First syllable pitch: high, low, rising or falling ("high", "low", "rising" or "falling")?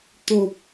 low